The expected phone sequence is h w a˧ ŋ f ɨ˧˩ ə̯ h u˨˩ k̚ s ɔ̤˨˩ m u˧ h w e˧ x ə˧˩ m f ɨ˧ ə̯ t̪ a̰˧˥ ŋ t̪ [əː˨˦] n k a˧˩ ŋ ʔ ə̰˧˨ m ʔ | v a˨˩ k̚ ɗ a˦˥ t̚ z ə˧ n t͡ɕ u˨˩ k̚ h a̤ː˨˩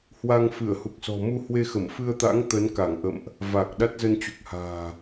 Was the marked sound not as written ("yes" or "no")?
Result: yes